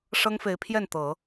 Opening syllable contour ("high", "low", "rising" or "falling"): high